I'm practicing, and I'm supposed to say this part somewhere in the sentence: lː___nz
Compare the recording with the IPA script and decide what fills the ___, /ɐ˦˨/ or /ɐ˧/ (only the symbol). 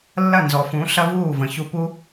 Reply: ɐ˦˨